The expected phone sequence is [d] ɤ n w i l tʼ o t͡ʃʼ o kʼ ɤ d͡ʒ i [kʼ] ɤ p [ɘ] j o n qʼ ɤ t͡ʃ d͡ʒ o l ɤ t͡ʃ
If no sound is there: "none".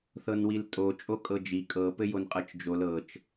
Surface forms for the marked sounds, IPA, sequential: θ, kʼ, ɘ

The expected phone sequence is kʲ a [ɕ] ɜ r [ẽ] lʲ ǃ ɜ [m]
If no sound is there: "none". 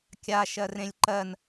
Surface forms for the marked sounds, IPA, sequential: ʃ, ẽ, n

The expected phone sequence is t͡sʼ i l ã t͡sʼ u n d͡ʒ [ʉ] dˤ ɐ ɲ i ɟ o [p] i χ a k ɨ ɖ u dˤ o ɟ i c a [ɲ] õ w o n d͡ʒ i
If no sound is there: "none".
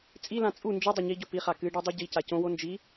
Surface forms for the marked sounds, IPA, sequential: ɨ, p, c

